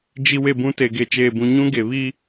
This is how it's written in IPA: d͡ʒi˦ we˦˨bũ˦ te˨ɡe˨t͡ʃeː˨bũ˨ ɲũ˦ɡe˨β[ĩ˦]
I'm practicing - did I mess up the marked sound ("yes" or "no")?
yes